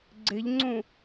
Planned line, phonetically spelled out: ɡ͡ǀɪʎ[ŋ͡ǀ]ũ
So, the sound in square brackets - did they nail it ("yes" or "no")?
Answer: yes